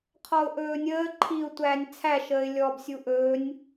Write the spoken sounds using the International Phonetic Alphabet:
qʰɔʊ̯ʔɵːnʲəː ǃʰiʊ̯ tʷæːnʲt͡sʰæʃəːɪ̯ lʲɔbsʲu ʔɵːnʲ

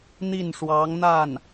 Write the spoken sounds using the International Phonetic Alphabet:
n̪i˥˩nʂwɑ˧˥ŋn̪a˥˩n

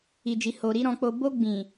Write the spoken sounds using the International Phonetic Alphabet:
i˨d͡ʒi˨ ho˨ɾi˧ ɾɔ̃˧k͡po˧ bo˧ ɡ͡bĩ˨

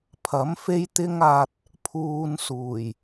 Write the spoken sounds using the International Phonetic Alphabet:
pʰɐ˨˥m fe˥jt̪ɪ˥ŋaː˧t̚ | pʰuː˧nsuː˨˩j

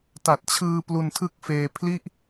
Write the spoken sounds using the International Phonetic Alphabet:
ta˨˩t̚t͡ɕʰɯː˧ plu˧ntʰɯ˥˩k̚feː˧ pʰli˥˩ʔ

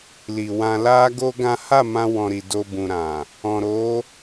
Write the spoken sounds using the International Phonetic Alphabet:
li˨wã˧la˦ɡo˦ ɡã˦ ha˦˨mã˧wɔ̃˨ ɾi˨do˧bũ˨ ɾã˨ | ɔ̃˨ɾo˨˦

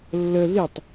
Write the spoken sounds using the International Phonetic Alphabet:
lːə ðitˤ

